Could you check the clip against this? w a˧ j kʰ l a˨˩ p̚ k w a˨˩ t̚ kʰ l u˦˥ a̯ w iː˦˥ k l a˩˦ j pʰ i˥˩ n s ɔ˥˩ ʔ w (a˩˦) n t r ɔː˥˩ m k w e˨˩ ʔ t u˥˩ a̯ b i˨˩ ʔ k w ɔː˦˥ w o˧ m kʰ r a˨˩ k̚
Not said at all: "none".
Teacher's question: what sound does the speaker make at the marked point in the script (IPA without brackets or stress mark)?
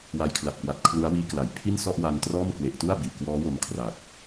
a˧